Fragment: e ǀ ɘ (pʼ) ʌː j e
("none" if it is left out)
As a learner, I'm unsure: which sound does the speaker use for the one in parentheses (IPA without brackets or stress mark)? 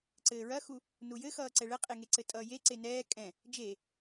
tʼ